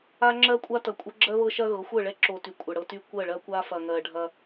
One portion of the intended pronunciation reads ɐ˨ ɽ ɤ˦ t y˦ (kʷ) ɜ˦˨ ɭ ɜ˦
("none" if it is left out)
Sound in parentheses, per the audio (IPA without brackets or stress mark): kʷ